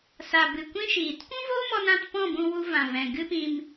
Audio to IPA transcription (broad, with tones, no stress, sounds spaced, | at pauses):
s a˨ b ɨ˨ kʷ ĩ˦ ʃ iː˨ t kʷ ũ˦ v oː˦ m ɔ˧ n ã˧ t p ɔ̃˦˨ b ũ˧ w u˧ v ã˨ v ɛ̃˨ ɡ ɨ˦ p ĩ˧ m